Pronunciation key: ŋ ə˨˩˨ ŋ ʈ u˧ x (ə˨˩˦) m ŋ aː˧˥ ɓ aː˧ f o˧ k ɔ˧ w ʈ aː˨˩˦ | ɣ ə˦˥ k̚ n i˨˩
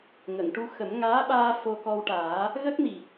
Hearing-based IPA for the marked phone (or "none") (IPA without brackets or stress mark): ə˨˩˦